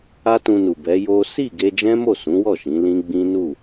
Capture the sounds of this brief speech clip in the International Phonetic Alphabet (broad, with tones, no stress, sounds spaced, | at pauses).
a˦ t ũ˧ n u˨ b ɛ˨˦ j o˦ s i˦˨ ɡ e˧ d͡ʒ ɛ̃˦ m o˦˨ s ũ˨˦ w ɔ˦˨ ʃ ĩ˨˦ l ĩ˦ ɡ͡b ĩ˦ n u˦˨